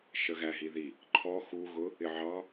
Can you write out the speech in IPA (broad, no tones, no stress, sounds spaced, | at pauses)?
ʃ ə ɣ æ ɦ i ð i | ǃʰ ɔ x u ɣ ʊ | ɪ ʕ ɑ